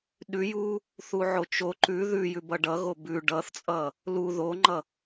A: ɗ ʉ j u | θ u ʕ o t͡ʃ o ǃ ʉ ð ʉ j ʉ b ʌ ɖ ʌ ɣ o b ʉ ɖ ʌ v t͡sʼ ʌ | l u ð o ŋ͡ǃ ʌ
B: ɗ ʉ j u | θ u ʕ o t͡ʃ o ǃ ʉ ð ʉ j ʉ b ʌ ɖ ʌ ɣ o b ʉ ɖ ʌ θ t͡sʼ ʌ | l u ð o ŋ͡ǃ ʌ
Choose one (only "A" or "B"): B